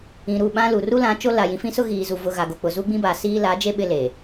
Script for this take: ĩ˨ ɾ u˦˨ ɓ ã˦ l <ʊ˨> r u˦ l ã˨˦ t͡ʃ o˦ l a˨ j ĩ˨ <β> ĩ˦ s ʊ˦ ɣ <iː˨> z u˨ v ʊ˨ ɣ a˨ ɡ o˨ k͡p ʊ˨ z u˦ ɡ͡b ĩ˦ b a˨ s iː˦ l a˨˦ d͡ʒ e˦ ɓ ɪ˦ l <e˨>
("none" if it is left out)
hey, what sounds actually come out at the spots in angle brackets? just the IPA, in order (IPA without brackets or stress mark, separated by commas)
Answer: u˨, f, iː˨, e˨